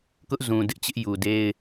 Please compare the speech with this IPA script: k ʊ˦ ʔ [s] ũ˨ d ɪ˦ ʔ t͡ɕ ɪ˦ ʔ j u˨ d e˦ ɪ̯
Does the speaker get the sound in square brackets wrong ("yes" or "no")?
yes